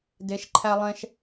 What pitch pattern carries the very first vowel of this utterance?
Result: rising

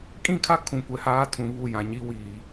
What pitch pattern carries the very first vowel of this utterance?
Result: falling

